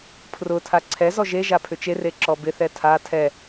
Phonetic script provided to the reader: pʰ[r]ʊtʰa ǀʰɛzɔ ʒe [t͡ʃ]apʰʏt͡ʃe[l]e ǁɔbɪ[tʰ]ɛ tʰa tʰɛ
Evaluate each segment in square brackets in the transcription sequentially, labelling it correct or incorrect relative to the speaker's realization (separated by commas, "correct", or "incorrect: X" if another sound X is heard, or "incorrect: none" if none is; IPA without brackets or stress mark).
correct, incorrect: ʒ, incorrect: r, incorrect: θ